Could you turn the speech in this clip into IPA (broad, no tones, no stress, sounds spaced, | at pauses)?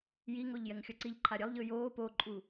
j i ŋ o ʎ j ɛ ŋ xʲ ʌ ǀ i ʎ ǃʰ a ɾʲ ɛ lˠ ʎ ɯ j oː p o ǃʼ u